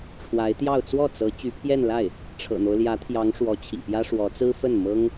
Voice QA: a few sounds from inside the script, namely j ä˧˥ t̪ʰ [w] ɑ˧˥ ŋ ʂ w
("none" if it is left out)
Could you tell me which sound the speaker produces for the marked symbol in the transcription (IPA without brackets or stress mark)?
j